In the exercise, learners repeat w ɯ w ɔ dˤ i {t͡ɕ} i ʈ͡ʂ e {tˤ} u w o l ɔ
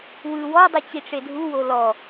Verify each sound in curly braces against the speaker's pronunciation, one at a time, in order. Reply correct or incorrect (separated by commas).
correct, incorrect